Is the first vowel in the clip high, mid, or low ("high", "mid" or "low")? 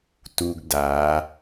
high